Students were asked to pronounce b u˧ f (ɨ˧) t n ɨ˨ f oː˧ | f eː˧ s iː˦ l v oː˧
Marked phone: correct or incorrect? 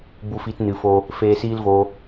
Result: incorrect